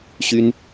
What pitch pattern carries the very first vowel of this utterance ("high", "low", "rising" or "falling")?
high